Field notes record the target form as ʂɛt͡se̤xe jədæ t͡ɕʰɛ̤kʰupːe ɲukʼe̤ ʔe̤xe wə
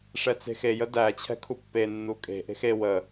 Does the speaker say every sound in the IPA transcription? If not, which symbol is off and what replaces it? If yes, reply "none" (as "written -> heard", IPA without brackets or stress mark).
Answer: ɲ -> nː